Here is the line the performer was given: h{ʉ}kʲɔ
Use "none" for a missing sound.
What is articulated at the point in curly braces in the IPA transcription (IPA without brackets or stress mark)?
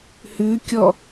ʉ